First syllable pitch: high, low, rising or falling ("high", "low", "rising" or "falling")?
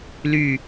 low